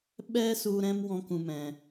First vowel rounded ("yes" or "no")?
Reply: no